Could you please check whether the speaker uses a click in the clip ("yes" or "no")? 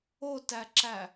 yes